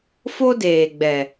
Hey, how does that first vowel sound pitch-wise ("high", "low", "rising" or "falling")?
high